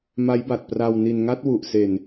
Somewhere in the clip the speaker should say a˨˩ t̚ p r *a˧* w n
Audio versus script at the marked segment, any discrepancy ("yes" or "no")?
no